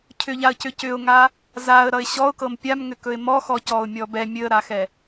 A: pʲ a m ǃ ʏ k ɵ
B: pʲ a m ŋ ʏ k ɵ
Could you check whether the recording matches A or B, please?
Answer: B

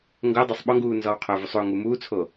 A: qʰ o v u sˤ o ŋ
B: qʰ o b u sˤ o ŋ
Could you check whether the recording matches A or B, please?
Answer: A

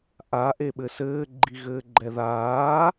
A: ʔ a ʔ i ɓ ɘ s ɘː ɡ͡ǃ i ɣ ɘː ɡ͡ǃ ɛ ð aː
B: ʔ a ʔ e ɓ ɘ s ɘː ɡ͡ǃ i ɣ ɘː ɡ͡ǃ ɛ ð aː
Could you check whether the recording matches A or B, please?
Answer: B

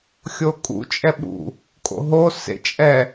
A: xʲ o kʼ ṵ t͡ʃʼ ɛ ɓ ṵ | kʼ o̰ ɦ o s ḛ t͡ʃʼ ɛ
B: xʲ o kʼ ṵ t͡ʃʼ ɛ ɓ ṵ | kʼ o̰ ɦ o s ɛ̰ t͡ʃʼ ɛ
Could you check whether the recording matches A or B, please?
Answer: A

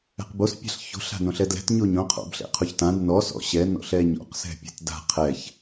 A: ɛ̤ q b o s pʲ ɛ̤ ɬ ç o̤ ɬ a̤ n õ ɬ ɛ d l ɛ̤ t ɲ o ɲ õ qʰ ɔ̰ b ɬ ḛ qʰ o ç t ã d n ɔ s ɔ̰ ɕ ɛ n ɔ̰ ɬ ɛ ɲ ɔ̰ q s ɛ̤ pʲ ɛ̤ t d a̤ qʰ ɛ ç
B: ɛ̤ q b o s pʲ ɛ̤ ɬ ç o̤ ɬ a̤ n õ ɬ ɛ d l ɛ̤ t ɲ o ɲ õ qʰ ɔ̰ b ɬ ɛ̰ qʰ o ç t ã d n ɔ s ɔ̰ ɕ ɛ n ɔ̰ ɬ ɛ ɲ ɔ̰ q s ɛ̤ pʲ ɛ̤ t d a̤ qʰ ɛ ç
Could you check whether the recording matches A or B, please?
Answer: B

